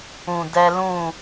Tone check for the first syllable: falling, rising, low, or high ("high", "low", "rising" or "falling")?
low